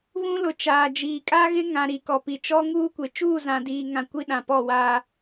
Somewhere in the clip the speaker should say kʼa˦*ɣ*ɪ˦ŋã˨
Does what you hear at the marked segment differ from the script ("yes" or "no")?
no